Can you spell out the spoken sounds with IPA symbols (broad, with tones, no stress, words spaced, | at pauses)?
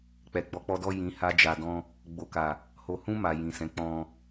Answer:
k͡pɛ˨ɡ͡bɔ˧k͡pɔ˧dɔ˦ jĩ˧ha˦d͡ʒa˧dɔ̃˦ | ɡ͡bo˨ka˨ | ho˨hũ˧ ma˨ jĩ˨sɛ̃˨˦ k͡pɔ̃˧